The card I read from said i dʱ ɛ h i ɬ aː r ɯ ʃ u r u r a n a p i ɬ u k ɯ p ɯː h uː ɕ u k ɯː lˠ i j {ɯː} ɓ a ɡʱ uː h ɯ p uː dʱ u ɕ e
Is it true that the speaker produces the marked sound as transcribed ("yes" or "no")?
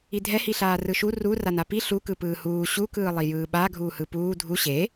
yes